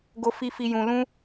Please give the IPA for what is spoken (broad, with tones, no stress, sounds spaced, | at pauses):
ɡ o˨ f i˨ f i˨ j ũ˨ l ũ˧